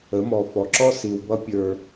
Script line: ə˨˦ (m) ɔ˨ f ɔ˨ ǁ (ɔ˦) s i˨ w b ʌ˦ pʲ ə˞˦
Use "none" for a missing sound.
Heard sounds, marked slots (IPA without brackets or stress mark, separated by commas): m, ɔ˦